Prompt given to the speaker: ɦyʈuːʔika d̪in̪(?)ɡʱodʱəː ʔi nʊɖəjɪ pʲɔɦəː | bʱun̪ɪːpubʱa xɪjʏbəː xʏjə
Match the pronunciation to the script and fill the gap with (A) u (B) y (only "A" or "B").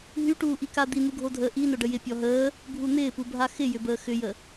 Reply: A